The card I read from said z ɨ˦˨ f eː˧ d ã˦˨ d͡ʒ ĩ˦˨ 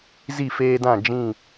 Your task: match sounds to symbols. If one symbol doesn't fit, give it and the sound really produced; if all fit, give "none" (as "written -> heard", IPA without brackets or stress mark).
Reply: ɨ˦˨ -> i˦˨